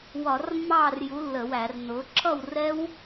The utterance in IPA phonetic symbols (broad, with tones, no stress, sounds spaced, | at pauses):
w ɒ˧˩˧ r mː ɑː˥˨ r j u˨˥ lː ə˧˩˧ w æ˧˩˧ r n ʊː˨˥ ǁʰ ʌ˥˨ w r ɛ˦˥ w